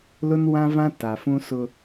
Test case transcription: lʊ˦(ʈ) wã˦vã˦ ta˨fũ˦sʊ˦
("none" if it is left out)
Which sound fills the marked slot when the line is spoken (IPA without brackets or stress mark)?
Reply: n